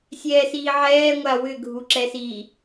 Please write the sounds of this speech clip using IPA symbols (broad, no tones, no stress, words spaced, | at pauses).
sʲɛːsiːʕɛː ŋʷawʏ ɡʱuǁɛsi